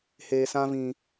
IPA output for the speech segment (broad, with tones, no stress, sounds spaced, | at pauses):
h eː˨ s ã˧ v ĩ˨